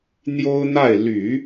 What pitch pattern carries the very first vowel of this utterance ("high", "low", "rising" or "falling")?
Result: high